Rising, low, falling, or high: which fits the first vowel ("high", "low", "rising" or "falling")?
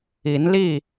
rising